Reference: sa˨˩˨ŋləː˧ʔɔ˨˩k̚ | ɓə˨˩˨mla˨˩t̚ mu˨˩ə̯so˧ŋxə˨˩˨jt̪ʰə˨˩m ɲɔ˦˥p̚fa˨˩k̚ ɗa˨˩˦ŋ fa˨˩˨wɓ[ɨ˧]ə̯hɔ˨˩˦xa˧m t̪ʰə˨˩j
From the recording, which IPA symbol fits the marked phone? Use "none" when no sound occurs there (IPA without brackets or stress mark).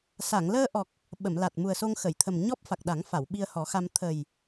i˧